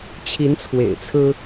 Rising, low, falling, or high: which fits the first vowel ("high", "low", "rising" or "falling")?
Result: rising